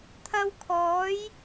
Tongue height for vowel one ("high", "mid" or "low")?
low